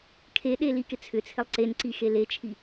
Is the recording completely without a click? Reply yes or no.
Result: no